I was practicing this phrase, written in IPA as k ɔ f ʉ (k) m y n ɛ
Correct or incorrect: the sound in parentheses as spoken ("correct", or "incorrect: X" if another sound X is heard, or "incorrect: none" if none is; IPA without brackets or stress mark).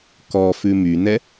incorrect: none